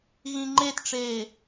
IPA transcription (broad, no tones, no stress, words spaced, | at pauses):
ɣĩŋ͡ǃetʈ͡ʂeː